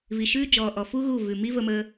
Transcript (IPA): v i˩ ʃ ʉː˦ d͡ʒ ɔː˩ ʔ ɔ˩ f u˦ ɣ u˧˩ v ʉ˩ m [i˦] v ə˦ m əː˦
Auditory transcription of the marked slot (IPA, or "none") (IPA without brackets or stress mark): i˦